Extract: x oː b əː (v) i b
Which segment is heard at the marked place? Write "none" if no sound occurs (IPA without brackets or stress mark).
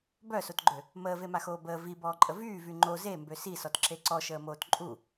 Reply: v